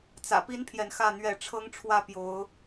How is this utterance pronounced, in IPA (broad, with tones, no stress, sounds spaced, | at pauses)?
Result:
t͡s ä̰˨˩ p i˦ n pʰ j ɛ˨ n x ä˥˨ n̪ ɥ ɛ˥˨ ʈ͡ʂʰ ɤ˦ ŋ ʈ͡ʂʰ w ä˥˨ p j o˨˦ ʊ̯